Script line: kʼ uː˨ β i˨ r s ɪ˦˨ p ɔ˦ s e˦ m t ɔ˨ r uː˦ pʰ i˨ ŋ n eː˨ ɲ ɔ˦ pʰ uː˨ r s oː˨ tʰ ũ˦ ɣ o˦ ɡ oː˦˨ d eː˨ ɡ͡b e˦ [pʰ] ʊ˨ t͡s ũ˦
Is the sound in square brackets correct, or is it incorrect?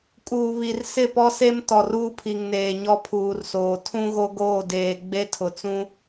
incorrect